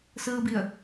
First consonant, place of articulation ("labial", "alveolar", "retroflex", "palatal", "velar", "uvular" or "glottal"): alveolar